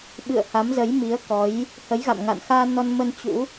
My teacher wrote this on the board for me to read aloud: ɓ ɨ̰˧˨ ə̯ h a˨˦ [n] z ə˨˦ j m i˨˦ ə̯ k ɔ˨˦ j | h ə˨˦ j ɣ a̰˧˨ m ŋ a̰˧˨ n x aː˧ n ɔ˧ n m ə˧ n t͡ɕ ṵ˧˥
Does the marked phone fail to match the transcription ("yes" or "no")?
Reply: yes